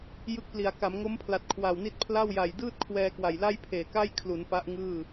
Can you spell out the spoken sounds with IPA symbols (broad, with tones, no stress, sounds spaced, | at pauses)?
j ɯ˦˥ k̚ p l i˩˦ a̯ k a˩˦ m ŋ o˦˥ m pʰ l a˨˩ t̚ kʰ w a˨˩ w n i˥˩ t̚ pʰ l a˥˩ w j a˨˩ j d ɯː˥˩ t̚ kʰ w ɛː˧ k w a˨˩ j l a˥˩ j pʰ eː˨˩ k a˥˩ j kʰ l u˩˦ n p a˦˥ ʔ ŋ ɯː˥˩